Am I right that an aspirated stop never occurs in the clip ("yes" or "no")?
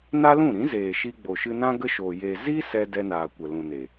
yes